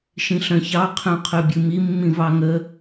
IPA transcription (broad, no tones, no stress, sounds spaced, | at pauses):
ʃ ĩ ɬ œ̃ ç ɑ qʰ œ̃ qʰ œ bʲ ɨ m i mː ĩ v ɑ ŋ ə